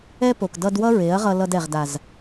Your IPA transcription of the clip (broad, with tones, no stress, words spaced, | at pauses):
ɛ˦po˨k dʌ˧dwʌ˦ ɹe˨˦ɐ̯ ʁʌ˧ lʌ˧dɛ˨ʁ da˨z